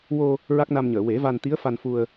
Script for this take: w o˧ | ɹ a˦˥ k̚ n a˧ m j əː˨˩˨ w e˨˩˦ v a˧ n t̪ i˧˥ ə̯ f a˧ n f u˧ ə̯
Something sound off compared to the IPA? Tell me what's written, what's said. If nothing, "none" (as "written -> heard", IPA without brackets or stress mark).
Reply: j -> ɲ